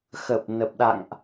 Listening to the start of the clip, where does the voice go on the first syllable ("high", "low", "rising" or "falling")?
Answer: low